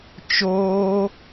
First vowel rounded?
yes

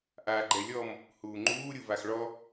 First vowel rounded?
no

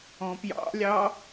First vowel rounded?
yes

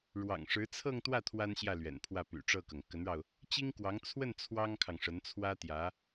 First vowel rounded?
no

